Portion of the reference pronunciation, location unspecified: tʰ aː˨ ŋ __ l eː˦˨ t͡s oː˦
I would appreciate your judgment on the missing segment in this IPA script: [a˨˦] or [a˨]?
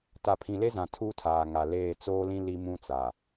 a˨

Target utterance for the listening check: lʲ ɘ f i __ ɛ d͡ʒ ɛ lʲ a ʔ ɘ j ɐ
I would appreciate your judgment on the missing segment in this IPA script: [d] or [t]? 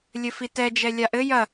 t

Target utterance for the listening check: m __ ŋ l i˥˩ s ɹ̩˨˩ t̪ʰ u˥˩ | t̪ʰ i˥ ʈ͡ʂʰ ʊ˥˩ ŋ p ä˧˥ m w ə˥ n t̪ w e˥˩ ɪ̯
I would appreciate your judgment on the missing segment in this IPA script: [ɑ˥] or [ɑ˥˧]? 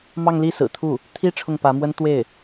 ɑ˥˧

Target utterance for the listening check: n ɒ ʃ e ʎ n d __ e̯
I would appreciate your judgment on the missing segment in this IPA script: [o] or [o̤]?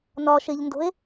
o̤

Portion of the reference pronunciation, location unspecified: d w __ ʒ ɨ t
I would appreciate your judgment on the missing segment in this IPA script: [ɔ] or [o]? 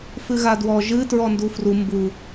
ɔ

